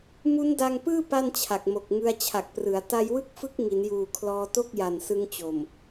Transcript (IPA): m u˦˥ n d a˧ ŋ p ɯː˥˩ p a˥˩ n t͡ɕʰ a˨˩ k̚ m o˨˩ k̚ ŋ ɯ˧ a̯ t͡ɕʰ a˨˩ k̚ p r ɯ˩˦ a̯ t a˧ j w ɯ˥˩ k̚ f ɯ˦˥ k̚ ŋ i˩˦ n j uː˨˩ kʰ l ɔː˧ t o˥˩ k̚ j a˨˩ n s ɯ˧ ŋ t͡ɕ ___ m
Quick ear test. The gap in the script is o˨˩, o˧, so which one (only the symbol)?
o˨˩